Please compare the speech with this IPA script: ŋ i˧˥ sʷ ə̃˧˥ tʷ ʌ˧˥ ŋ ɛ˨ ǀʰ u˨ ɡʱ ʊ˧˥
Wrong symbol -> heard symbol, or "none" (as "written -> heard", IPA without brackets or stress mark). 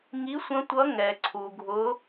none